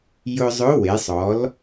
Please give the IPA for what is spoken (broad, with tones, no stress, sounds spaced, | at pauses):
j ʊ˧ zˤ ʊ˧˥ w e˩˧ sˤ ɔ˩˧ l